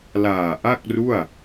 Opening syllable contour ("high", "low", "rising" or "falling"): low